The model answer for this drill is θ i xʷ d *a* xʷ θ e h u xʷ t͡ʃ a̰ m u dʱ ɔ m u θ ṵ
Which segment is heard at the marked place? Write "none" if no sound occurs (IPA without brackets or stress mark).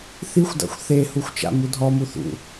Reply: a̰